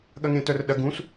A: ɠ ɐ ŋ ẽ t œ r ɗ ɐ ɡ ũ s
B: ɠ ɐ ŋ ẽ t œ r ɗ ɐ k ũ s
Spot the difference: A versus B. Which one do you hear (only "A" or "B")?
A